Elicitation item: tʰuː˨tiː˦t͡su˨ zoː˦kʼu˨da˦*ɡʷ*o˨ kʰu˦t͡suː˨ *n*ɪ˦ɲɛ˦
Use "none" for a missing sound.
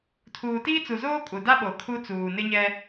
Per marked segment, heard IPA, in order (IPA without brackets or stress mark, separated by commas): ɓ, n